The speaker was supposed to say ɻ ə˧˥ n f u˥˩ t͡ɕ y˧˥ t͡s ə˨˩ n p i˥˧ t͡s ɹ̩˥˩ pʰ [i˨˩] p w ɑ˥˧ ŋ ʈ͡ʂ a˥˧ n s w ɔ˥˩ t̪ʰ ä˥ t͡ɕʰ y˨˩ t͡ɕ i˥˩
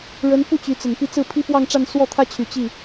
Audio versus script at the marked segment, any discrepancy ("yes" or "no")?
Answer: yes